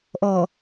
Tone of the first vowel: low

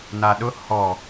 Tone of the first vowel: low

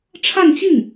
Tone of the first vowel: falling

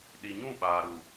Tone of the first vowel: low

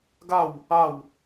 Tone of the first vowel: falling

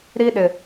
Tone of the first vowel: high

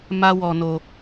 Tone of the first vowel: high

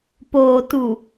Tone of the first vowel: low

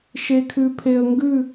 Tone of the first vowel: low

